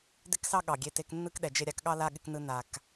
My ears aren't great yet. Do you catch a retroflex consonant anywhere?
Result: no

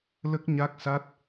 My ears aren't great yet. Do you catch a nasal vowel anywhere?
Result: no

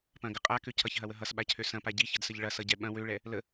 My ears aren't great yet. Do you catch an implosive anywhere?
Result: yes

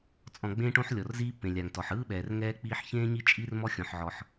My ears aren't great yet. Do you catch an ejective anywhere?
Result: yes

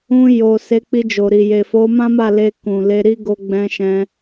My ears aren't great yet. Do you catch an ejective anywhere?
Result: no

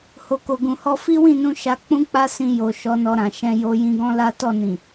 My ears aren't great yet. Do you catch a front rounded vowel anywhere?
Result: no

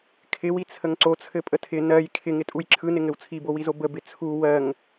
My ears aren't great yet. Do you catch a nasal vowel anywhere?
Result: no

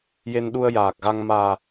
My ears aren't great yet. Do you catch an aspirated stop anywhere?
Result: no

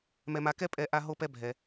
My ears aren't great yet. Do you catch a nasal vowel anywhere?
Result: no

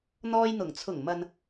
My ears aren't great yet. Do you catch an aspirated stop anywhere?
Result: yes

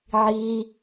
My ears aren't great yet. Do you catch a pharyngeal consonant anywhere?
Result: yes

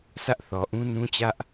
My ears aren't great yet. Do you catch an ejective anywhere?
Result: no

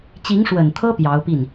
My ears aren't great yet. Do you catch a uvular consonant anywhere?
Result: no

